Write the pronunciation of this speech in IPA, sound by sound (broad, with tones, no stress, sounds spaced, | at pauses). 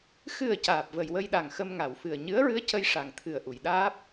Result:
x ɨ˨˩ ə̯ c aː˨˩ p̚ v ə˨˩ j w ə˧ j ɗ a˨˩ ŋ x ə˧ m ŋ a˨˩˨ w f ɨ˨˩ ə̯ ɲ ɨ˧˥ ə̯ ɹ ɨ˧˥ ə̯ c ə˧ j ʂ a˨˩ ŋ t̪ʰ ɨ˨˩ ə̯ ʔ u˨˩˨ j ɗ aː˦˥ p̚